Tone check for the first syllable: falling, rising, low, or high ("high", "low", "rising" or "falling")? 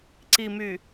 low